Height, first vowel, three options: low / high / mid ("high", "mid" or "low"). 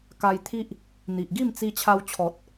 low